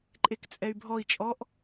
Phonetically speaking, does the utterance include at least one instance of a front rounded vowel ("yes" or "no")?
yes